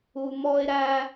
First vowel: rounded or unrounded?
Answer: rounded